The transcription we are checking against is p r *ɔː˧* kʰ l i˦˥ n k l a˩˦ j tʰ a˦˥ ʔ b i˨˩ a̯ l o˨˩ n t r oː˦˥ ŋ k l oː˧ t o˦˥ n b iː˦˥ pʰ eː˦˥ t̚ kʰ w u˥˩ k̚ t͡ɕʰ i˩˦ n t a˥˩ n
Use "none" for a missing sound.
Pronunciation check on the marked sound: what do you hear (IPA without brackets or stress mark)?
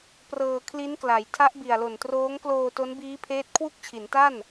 ɤː˧